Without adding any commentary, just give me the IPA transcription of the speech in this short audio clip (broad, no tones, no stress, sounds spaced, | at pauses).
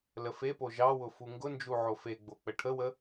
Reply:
l ə f e p o ʒ ɑ w ʊ f u ŋ ɡ ʊ n d͡ʒ u ʕ o f e ɡ͡b o k͡p ə ʈʰ ə w ə